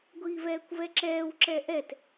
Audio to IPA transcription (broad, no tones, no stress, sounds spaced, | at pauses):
ɡʷ iː v ɛː kʷ v ɛ ǁ ɛː w ǁ ɛ ʔ ɛ t